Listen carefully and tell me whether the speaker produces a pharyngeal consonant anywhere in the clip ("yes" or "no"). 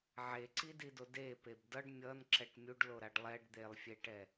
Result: yes